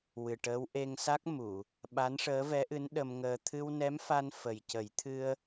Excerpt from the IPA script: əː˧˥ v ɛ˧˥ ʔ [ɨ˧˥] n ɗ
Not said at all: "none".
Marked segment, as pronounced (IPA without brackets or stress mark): ɨ˧˥